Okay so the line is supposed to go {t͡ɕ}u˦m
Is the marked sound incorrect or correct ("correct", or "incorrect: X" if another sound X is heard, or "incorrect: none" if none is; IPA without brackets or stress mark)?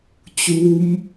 correct